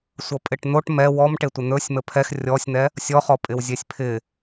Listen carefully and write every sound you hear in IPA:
sʷ ʌ pʼ ɪ ʈ n̪ o ʈ m ɛ w ɔ m ʈ e tʷ ɪ n̪ ɵ sʲ m ə pʰ ɛ x rʲ ɔ sʲ n̪ ɛ | sʲ ɔ χ ɔ pʼ ɪ w zʲ e sʲ pʰ ɪ

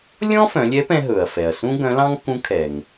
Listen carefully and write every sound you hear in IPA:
lʲ ɔ̃˥ f œ̃˩˧ lʲ ɛ˧˥ p ɛ̃˧ ɦ ɵ˩ ɐ̯ f ɛ˩ ɐ̯ s ũ˥ ɡ œ̃˧˥ l ɑ̃˥ ŋ k ũ˧˥ kʰ ɛ˩ ŋ

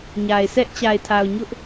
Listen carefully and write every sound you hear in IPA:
ɲ a˨ ɪ̯ s ɛ˦ ʔ t͡ɕ a˨ ɪ̯ tʰ a˨ ʊ̯ ɲ ʊ˦ ʔ

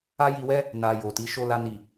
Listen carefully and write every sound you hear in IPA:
a˦ j i˧ w ɛ˦ | n a˧ j o˨ t i˨˦ ʃ o˧ l a˧ n i˨

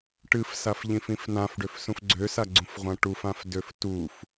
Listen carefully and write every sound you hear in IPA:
ʈ ɨ f s a f ʎ ĩ f ĩ f n ã f ɖ ø f s ũ f ɡ͡ǀ ø s a ɡ͡ǀ ũ f ʁʷ ã ʈ u f ã f d ø f t u f

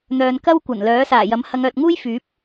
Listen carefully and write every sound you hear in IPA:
n̪ œː˧ n k ɐ˥ w kʷ ɐ˨˩ n l œː˨˥ s aː˨˩ j ɐ˨˥ m h ɐ˨˧ ŋ œː˨ t̚ ŋ uː˥ j f yː˨˥ p̚

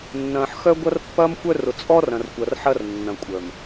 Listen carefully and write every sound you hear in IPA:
nː ɐ̃ː˨ ħ x œ˦ ɡʷ ɐ˦ r pː ɐː˦ m xʷ œ˦ r ʊ˨ t͡sʼ ɔ˦ r ɐ̃˨ r kʷ ɐ˨ r ħ ɐ˦ r nː ɐ̃˨ kʷʼ œ˨ m

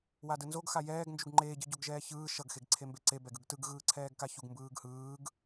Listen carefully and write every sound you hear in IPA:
w a d ɯ n z o ɡ x a j ɛː ɡ n d͡ʒ u ɡ ŋ͡ǃ eː ɟ ɯ ɟ o ɡ ʒ ɛː ç ɯː ʃ ʌ ɡ x e ɡ ǀʰ e m b e ǀ e b ɛ ɡ ɯ ɡ t ɯ ɡ ɣ ɯː ǀʰ ɛː ɡ k a ç u ɡ m b ɯː ɡ h ɯː ɡ

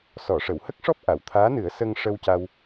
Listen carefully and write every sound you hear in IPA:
s ɔ˨˩˨ ʂ ə˨˩˨ w h ə˦˥ k̚ ʂ ɔ˦˥ p̚ ʔ a˨˩˨ w t̪ʰ aː˧˥ n ɨ˨˩˦ ə̯ s ə˧ ŋ ʂ ə˧ w c a˧ w

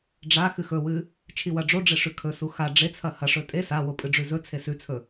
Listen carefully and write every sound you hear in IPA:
ɖ͡ʐ a x ɨ x ɵ w ɨ | t͡ʃʰ i w ɐ ɖ͡ʐ o ɖ͡ʐ e ʂ ʉ kʰ ɵ s u x a ɖ͡ʐ e t͡sʰ ɐ h ɐ ʂ ɵ tʼ e s a w o pʼ ɨ ɖ͡ʐ ʉ z ɵ t͡sʰ e s ʉ t͡sʰ ɵ

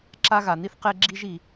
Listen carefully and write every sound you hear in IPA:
ǁ a˥ ɣ a˨ n̪ i˥ θ q e˥ ɡ͡ǁ i˥ ʒ i˨

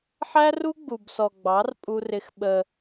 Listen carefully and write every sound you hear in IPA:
ħ æ˦ r u˦ ɡ͡b u˨ b s ɔ˨ ɡ͡b ɑ˨˦ r pʼ u˦ r ɪ˦ x ɓ ə˦

